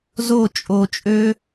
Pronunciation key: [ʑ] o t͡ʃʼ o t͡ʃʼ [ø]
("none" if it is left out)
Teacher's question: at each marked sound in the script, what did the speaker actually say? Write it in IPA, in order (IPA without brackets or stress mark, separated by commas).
z, ø